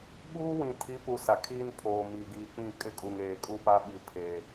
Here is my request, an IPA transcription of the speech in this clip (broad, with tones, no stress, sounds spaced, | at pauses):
ɓ uː˦ w ĩ˨ tʰ i˨˦ p u˨ s a˨ kʰ iː˦ n pʰ oː˨ m iː˨ ɡ iː˨ k͡p ĩ˦˨ kʼ ɪ˦ kʼ u˨ ŋ eː˨ kʼ u˦ p a˦ ɓ i˨ pʰ eː˨